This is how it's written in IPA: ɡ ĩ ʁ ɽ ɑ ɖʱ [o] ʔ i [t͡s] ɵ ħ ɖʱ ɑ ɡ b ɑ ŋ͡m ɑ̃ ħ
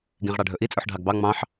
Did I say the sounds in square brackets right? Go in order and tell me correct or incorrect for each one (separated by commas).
incorrect, incorrect